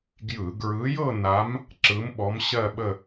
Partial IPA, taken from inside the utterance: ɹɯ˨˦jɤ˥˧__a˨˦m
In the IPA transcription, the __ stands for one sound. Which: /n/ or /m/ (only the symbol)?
n